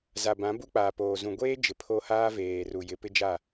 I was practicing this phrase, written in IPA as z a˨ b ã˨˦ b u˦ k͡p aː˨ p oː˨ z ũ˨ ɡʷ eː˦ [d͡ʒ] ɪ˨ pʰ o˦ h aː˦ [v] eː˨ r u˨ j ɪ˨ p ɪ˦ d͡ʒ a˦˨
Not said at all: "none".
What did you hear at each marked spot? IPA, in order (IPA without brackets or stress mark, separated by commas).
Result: d͡ʒ, v